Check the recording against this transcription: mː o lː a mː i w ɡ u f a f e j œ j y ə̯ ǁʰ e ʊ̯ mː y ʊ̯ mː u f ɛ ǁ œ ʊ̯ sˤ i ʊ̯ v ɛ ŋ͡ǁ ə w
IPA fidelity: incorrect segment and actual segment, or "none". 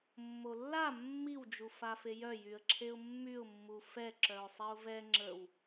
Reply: ɡ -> d͡ʒ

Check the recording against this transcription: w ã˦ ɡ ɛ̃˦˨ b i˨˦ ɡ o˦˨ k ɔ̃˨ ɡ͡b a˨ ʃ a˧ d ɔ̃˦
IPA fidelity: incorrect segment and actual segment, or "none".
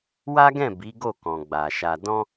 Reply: ã˦ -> a˦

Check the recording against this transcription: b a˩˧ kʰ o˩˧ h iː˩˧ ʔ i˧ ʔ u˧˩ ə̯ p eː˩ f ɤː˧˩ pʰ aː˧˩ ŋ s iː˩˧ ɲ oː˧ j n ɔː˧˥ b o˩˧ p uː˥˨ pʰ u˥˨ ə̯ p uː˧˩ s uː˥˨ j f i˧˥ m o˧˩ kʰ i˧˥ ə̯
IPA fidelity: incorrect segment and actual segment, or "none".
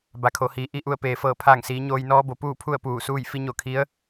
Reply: m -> ɲ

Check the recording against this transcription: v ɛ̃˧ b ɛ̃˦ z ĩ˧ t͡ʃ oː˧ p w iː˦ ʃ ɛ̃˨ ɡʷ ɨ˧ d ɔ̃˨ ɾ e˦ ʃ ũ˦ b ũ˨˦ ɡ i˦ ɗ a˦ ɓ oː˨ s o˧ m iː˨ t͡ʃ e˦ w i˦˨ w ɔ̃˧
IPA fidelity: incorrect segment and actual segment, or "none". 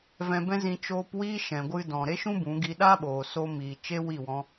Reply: none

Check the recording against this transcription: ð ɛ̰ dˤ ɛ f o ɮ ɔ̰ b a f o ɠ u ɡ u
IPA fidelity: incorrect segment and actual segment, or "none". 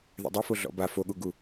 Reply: none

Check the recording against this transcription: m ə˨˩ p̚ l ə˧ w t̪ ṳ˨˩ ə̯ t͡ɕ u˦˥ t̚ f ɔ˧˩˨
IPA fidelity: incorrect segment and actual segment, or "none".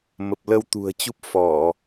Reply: t̚ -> p̚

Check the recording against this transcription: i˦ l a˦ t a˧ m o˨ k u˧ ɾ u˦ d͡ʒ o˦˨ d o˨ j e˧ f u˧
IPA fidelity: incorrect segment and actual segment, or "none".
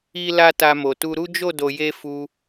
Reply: k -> t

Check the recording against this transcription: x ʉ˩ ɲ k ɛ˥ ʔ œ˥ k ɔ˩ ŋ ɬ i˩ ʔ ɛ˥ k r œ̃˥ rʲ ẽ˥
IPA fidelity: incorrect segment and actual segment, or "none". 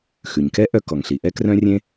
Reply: none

